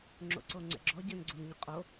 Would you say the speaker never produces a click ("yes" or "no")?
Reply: no